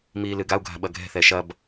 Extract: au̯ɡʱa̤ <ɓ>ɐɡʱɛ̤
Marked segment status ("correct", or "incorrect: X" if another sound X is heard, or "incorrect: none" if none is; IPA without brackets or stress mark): correct